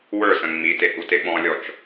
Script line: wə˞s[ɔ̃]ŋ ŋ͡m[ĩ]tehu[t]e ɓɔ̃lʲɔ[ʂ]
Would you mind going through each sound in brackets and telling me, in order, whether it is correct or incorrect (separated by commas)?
incorrect, incorrect, correct, incorrect